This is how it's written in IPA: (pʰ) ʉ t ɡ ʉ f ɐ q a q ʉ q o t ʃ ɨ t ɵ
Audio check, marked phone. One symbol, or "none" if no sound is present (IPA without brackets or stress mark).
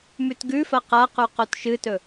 m